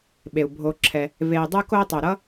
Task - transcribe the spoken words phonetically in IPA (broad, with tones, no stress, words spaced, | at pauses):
ɓe˩u̯bʱo˨ǁʰɛ˨ | ve˨i̯dˤɯ˦ko˦i̯ tˤe˨ɾʌ˥